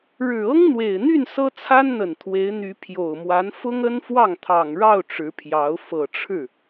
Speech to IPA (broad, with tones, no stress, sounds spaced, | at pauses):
ɻ ɻ̩˨˩ ɤ˥ ŋ n̪ w e˨˩ ɪ̯ n̪ y˥˩ n s ɤ˥ t͡sʰ a˥ n n̪ ə˨˩ n t̪ʰ w e˧˥ ɪ̯ n̪ y˧˥ pʰ j o˨˩ ʊ̯ m w a˧˥ n f ʊ˥ ŋ ə˥ n f w ɑ˥˩ ŋ t̪ʰ ɑ˨˩ ŋ ɻ ɑ˥˩ ʊ̯ ʈ͡ʂ ɻ̩˧˥ pʰ j ɑ˧˥ ʊ̯ f ɤ˨˩ ʈ͡ʂʰ ɻ̩˥˩